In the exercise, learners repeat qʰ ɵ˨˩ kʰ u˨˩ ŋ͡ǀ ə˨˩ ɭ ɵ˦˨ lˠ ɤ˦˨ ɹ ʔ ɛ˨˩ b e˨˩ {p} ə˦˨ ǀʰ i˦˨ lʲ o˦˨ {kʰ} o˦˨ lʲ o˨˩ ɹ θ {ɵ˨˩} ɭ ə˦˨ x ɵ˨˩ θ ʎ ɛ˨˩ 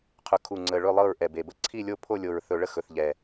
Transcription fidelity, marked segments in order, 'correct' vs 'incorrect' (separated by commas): incorrect, incorrect, correct